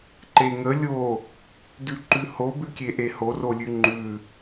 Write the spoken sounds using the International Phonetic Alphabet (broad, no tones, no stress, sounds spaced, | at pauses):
ǃ e ŋ ə lʲ o | d ʉ ǃ ʉ h o b ʉ kʲ e ʔ e h o r o lʲ ʉ ŋ͡ǃ ʉ